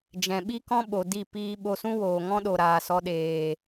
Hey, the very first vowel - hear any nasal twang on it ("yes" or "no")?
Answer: yes